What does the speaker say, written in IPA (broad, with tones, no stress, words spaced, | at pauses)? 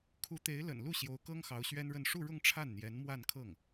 kʰu˧˥t̪e˧˥ɪ̯lə̰˨˩nlu˥˩ ɕjo˧˥ʊ̯kɤ˥ŋ xɑ˧˥ʊ̯ɕɥɛ˥nɻə˥˧n ʂu˥˧ɻʊ˥˧ŋ ʈ͡ʂʰa˥˩nn̪jɛ˧˥n mwa˥˧nkʰɤ˥˩ŋ